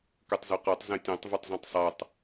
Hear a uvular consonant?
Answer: yes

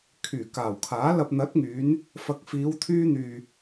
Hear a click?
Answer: no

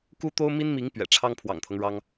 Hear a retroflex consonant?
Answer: yes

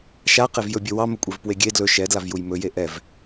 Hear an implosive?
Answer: no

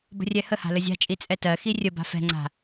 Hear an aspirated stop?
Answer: no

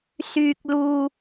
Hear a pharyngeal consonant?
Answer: no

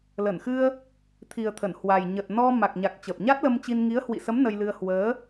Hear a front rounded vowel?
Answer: no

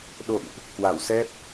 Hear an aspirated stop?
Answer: no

